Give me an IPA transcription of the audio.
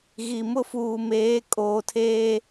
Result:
ɣi˨mʊ˦fuː˨meː˨˦ kʼoː˨tʰeː˦

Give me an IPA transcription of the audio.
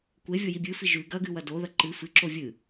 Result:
kʷevʲoji bʲɨfi ʒʉ ɡɐɡɨwɐ doðɐ ǃɨ fɨǁo vʲɨ

